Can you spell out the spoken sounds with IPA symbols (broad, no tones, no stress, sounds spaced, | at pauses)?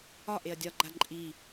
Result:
ɒ ʔ e ɐ̯ dʲ ɒ ɡ͡ǃ a ǃʼ i